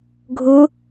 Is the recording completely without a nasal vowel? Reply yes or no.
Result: yes